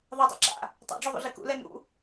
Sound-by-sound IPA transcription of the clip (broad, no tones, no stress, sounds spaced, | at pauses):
ðˤ a tˤ ḭ ǁ a̰ | tˤ a̰ ɖ͡ʐ o ðˤ o̰ ɮ i k ṵ l ɛ n ṵ